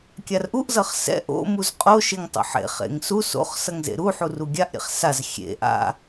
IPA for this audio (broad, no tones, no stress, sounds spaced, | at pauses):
kʲ a r ʔ u ʔ z ʌ χ s ɛ̰ ʔ o̰ m u z qʼ o ʃ e ŋ tˤ o̰ ħ ḛ χ ḛ ŋ s u s o̰ χ s ʌ ŋ z ḛ ɾ u ħ u r u ɡʲ a ʔ ɾʲ ḛ χ s a z xʲ ḛ ʔ a̰